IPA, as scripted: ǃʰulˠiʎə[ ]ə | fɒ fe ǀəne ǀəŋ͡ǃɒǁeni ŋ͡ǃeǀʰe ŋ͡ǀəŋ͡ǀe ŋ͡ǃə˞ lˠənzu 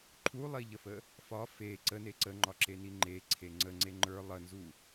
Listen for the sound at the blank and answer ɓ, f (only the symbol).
f